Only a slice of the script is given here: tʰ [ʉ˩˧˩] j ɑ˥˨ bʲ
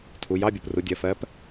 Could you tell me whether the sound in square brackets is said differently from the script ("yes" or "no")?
yes